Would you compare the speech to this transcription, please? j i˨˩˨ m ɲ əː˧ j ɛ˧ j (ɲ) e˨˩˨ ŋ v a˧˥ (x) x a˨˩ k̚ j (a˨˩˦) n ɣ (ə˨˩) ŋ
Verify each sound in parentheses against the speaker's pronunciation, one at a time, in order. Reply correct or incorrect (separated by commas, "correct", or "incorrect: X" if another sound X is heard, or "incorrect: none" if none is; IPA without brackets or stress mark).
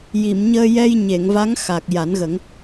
correct, incorrect: ŋ, correct, incorrect: ə˨˩˦